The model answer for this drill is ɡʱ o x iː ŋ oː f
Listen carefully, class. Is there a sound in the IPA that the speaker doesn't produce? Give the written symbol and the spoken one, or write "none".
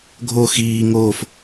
none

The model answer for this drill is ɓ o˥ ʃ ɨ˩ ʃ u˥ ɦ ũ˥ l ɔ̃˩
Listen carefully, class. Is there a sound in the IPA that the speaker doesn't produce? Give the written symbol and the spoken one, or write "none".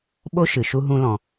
none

